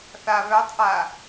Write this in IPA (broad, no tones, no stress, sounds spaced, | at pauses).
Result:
θ a β œ tˤ ʔ a